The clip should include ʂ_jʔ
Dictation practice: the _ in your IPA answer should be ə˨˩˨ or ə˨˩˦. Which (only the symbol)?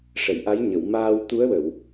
ə˨˩˨